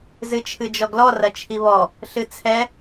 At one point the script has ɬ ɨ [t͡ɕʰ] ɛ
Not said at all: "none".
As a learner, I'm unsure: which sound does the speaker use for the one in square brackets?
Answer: t͡sʰ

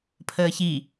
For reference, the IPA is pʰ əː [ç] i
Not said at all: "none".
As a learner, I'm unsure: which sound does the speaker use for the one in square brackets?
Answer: ç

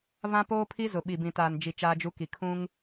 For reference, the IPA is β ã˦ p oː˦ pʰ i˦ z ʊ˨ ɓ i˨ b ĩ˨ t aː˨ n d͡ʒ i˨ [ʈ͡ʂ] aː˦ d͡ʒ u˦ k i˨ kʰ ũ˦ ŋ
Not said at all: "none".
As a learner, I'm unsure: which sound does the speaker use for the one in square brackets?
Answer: t͡ʃ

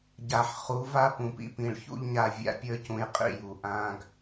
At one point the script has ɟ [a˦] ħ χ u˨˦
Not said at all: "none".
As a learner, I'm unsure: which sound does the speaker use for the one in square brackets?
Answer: a˨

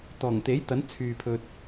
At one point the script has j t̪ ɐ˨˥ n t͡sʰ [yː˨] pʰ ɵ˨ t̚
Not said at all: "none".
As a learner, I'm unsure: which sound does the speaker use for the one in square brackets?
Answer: yː˨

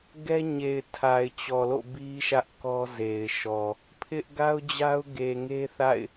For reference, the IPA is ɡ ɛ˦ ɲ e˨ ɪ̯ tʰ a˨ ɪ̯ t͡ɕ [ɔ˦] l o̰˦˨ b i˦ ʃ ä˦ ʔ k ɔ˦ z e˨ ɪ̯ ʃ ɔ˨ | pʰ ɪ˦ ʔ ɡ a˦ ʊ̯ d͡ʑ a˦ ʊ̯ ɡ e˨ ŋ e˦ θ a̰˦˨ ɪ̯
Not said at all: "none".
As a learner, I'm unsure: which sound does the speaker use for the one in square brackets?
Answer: ɔ˨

